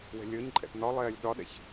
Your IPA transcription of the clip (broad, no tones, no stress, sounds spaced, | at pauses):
w ɛ̤ lʲ əː ɲ ǃʼ ɛ̰ t n ɒ lˠ ɛː lʲ ɗ ɒ ɗ ɛ̰ ç